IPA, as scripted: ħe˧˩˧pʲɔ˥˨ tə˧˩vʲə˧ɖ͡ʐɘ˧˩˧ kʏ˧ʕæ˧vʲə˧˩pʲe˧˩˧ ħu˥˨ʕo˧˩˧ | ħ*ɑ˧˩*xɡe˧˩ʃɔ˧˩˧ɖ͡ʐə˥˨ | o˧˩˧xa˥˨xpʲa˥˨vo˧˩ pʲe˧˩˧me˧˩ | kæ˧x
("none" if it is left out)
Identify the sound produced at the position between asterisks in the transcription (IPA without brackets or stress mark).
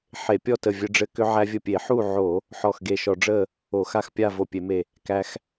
ɔ˧˩